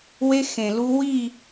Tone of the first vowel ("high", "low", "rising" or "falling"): high